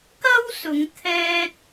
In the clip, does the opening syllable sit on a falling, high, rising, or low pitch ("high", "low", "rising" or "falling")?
high